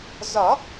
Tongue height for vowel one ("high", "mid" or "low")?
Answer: low